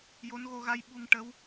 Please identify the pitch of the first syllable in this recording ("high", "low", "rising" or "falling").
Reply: rising